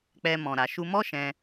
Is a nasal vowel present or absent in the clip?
present